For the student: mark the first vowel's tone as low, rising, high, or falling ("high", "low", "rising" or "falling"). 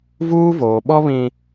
high